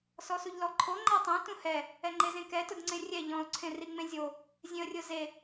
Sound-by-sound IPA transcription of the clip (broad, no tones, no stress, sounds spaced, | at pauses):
s ɔ s u ʎ l ɔ ǃʰ o ŋ͡ǃ a tˤ ẽ t ũ h ɛ | ɛ ŋ͡ǃ e z ẽ k ɛ t ʊ d ŋ͡ǀ ẽ rʲ ɛ ʎ ɔ̃ ʊ̯ ǀʰ ẽ r i ŋ͡m ẽ zʲ o | zʲ ẽ ə̯ rʲ ʊ z e